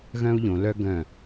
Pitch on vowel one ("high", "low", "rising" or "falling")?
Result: high